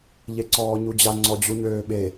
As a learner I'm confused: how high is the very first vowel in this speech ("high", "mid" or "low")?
mid